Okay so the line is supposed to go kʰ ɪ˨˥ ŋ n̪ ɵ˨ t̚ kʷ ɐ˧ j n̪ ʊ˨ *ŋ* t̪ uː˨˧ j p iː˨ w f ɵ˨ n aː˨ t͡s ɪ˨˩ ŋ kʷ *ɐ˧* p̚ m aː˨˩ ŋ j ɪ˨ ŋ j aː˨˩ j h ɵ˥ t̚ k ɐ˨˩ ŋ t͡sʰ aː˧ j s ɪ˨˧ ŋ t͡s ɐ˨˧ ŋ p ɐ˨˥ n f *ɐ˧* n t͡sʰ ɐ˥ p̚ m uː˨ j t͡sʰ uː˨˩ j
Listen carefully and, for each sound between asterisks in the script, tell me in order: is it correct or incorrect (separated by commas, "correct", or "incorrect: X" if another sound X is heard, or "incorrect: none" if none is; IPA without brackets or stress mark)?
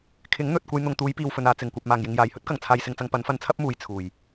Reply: correct, incorrect: ɐ˨, correct